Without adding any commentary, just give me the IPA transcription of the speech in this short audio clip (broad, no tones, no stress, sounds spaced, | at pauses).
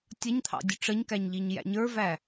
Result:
tʲ ʌ ɲ t̪ʰ ɑ̰ dʲ ʊ ʈ͡ʂ ə ɲ k æ ɲ ʎ i ɲ j æ̰ ɲ ə˞ v æ